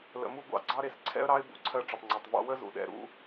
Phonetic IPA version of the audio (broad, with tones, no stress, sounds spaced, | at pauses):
l ə̰˧ m u˦ ɡʷ ɑ̰˧ ɡ͡ǀ ɑ˦ ɾ e˧ s ǀʰ ɛ̰˦ ə̯ ɾ ɑ˦ ɪ̯ b ṵ˨˦ ǀʰ ɜ˧ ʈ͡ʂ ə˨ tˤ ŋ͡ǀ ɛ˨ tˤ v ɑ̰˦ w ə˦ z ṵ˨ ɗ ɛ̰˨ ɾ ṵ˧